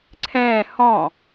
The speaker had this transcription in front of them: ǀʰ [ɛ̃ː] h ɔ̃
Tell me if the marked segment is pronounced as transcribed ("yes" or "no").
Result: yes